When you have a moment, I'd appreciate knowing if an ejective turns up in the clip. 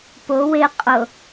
yes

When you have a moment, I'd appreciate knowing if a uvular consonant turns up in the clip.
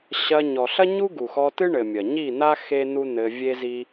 no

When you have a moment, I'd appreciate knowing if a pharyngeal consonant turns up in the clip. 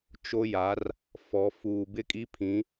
no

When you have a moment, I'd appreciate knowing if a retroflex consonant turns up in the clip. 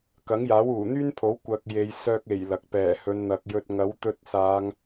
no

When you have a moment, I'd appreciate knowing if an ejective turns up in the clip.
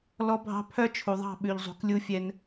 no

